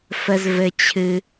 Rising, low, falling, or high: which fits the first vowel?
high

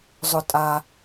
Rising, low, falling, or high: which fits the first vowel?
high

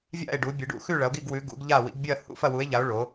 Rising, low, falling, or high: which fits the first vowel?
falling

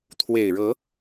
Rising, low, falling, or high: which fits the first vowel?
low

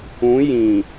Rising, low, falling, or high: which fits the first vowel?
rising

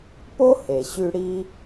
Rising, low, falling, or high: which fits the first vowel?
high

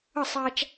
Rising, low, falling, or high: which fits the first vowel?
falling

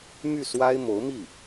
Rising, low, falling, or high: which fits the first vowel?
falling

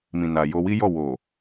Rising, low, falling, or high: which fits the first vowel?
low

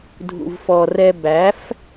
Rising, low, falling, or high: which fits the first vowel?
low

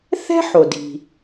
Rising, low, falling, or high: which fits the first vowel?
high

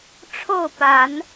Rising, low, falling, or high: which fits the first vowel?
falling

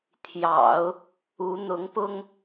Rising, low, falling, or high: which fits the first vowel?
low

